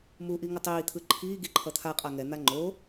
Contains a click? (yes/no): yes